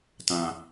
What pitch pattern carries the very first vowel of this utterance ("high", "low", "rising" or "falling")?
high